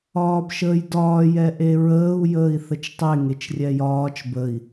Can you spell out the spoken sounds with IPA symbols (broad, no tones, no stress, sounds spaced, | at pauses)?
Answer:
ɒː b ʃ əː j d ɒː j ɛ ʔ e ɹ əː u̯ j əː i̯ θ ə t͡ʃ tˤ e ŋ e t͡ʃ rʲ ɛ j ɒː t͡ʃ b ə i̯